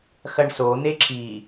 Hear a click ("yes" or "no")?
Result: yes